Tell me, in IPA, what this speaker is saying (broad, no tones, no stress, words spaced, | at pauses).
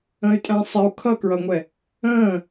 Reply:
ə̃y̯tʼæ̃sˤɪu̯ kʰʌkɹʌŋʷɛ | ə̃ː